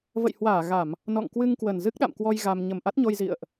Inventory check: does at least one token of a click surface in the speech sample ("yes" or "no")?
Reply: no